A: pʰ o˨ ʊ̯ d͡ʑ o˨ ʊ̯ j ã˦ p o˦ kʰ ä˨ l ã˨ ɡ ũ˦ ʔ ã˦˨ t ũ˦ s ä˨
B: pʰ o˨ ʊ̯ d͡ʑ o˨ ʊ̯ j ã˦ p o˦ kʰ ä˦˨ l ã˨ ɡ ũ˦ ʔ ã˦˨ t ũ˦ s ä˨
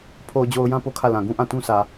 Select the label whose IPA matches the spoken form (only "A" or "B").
B